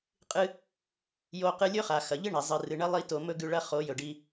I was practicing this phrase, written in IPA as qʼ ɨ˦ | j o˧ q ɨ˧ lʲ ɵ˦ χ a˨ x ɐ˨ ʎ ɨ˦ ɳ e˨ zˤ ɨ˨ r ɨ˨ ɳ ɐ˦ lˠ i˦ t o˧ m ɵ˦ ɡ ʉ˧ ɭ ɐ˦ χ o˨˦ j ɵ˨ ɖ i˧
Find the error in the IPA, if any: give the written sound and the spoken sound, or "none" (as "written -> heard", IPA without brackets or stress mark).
none